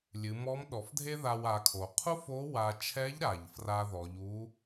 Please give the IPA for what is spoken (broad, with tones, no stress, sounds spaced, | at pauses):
lʲ ɨ˩˧ m ɔ˧˥ m ɗ ɔ˩˧ f dʱ e˥ ð a˧ w a˩˧ kʰ o˩ qʰ u˥ f o˧˥ w a˧ t͡ʃʰ ɛ˧˥ ʎ ɾ a˩ ʎ f r a˧ ð ɔ˩˧ ʎ u˧˥